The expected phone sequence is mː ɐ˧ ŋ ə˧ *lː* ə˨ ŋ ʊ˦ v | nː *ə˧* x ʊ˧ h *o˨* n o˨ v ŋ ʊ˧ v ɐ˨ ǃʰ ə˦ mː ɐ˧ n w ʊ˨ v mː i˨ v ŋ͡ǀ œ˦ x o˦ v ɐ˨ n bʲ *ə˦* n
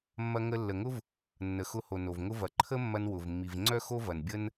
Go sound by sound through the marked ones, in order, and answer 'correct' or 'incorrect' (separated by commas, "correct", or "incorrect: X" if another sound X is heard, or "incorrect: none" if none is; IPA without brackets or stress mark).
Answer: correct, incorrect: ə˨, correct, correct